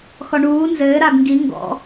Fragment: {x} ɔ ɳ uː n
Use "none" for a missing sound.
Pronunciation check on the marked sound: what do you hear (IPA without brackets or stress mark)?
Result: x